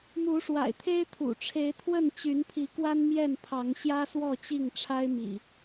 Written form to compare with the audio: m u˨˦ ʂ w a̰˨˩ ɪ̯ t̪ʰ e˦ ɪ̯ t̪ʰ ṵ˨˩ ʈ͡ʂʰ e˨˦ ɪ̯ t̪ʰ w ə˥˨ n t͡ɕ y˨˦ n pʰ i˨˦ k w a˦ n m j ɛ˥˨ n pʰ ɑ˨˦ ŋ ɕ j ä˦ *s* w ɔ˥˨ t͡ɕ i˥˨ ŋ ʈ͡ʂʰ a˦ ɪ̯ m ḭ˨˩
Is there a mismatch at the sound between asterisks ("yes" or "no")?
no